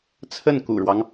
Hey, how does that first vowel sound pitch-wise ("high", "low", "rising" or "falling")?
falling